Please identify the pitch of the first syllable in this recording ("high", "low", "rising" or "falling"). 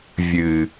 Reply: low